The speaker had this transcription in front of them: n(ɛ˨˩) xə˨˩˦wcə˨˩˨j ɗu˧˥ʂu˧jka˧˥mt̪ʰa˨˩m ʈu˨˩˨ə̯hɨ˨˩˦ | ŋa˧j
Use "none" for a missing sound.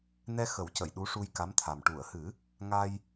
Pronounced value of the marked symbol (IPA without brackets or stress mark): ɛ˧